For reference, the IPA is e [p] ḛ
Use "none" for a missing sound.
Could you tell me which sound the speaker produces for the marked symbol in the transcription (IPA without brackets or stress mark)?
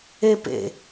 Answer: p